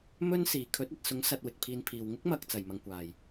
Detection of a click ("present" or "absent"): absent